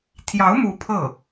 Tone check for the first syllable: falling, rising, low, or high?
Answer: rising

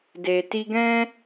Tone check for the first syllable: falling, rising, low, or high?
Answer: low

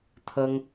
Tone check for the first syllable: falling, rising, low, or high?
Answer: high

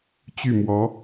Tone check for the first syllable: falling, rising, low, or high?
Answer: falling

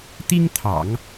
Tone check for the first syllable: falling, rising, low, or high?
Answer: high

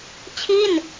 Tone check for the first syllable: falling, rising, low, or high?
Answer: falling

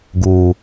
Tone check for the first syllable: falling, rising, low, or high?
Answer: low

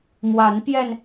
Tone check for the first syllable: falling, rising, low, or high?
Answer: rising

